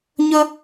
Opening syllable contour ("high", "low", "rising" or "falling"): high